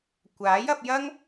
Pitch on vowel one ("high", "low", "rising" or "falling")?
rising